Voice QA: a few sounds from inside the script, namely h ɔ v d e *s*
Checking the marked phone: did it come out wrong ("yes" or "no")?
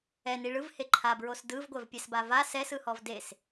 no